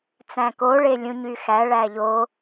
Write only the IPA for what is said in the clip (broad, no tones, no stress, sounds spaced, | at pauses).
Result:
t͡s æ̃ k o ɭ e lʲ ũ ɲ y x æ ɭ æ ʎ o